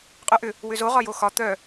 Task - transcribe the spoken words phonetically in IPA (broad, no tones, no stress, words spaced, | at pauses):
qʼœʔʏ | wʏzo ʁɒjoxɒ t̪œ